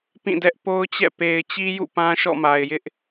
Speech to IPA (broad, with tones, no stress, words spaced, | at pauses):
pĩ˦˨dɛ˦ʔpo˦ʊ̯t͡ɕɛ̰˦˨ pe˨ɪ̯t͡ɕi˦jṵ˦˨ pã˦ʃɔ̰˦˨ma˨ɪ̯jɪ˦ʔ